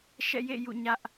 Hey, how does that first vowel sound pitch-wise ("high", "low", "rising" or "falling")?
falling